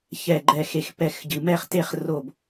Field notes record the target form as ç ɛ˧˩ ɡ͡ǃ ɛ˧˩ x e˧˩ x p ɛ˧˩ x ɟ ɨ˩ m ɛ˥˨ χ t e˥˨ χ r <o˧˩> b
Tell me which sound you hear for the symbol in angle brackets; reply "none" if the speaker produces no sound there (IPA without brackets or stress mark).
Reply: o˧˩